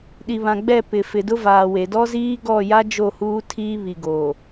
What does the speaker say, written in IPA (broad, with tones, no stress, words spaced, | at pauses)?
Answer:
ɗi˨βã˨ɡ͡bɛ˦˨ pɪ˨fɪ˨dʊ˦vaː˨ we˨ dɔ˦ziː˦ɡɔ˦˨ja˦ d͡ʒo˦˨huː˦tʰiː˦βi˨ ɡoː˨